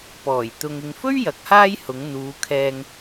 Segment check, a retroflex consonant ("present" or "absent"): absent